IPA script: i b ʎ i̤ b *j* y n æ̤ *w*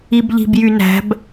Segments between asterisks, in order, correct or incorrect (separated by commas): correct, incorrect